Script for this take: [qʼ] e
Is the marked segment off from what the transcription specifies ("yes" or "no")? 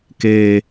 yes